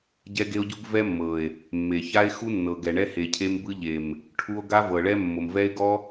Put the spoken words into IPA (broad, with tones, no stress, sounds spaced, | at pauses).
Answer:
ɟ ɛ˦ ɡ e˦ o̯ ɟ u˦ ɡ v ɛ˦ mː ɤ˨ e̯ | mː e˨ ç a˦ e̯ x u˦ nː ɤ˨ ɡ ɛ˨ ɳ ɛ˦ h e˨ cʰ e˦ m b ɯ˦ ʎ e˨ m | ʈʰ u˦ o̯ ɡ a˦ v ɤ˨ ɭ ɛ˦ mː o˨ m v ɛ˦ e̯ ɡ ɔ˦